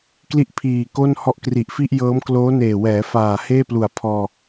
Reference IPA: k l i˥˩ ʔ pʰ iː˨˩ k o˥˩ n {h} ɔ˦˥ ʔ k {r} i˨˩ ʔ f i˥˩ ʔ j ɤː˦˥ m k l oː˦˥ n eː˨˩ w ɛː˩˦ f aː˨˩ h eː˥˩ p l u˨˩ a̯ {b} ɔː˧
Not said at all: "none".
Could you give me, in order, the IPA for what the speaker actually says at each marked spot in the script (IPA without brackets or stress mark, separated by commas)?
h, r, pʰ